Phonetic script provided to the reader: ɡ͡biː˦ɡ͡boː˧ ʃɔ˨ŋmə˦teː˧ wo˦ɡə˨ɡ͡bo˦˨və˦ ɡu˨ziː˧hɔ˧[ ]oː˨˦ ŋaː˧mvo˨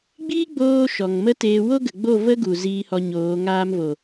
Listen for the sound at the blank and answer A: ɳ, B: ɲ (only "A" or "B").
B